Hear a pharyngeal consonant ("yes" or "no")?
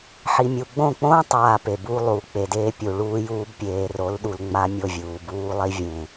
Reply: yes